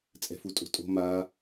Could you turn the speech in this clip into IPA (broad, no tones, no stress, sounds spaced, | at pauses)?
t͡sʼ ɛ̤ f u tʼ o̤ tʼ o̤ m a